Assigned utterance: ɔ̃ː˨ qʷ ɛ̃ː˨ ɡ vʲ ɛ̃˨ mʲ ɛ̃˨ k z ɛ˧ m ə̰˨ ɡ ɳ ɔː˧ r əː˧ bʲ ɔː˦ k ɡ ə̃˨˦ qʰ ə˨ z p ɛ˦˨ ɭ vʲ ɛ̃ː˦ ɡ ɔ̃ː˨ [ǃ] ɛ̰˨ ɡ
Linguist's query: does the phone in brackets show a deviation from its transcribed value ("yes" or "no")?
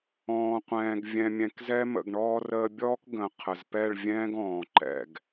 no